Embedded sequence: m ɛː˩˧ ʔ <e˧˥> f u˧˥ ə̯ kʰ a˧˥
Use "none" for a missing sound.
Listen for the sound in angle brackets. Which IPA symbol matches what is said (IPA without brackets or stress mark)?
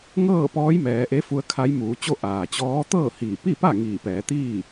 e˧˥